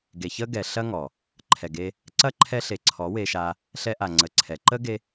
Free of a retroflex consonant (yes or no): yes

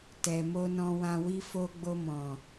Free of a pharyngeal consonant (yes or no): yes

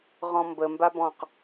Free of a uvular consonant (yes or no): no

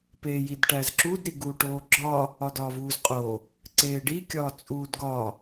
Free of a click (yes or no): no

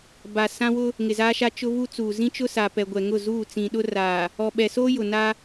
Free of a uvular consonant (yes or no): yes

